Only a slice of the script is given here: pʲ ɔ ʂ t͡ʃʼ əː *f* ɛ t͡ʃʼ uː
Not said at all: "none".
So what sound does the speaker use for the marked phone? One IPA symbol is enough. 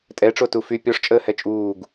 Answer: h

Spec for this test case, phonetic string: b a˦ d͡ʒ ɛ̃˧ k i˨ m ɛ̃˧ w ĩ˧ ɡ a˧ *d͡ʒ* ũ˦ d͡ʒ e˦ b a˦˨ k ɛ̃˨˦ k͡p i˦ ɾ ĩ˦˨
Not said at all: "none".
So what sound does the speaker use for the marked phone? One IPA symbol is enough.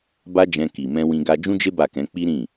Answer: d͡ʒ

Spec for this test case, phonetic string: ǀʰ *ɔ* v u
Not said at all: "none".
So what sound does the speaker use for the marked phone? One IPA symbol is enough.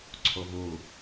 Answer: o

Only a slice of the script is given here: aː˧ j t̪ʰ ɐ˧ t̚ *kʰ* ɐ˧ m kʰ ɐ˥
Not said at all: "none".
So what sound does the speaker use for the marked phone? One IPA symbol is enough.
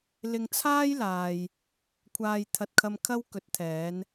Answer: kʰ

